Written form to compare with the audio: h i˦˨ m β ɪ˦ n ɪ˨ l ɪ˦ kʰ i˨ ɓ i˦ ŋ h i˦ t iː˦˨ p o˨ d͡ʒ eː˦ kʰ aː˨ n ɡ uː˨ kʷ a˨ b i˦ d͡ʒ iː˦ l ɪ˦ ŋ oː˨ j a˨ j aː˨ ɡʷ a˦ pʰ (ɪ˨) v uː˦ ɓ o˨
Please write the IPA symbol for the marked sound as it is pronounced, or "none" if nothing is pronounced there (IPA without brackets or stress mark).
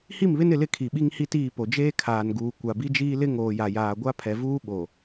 ɛ˨